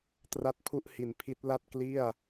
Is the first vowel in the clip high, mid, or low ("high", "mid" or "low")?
low